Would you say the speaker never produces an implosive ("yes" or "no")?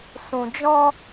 yes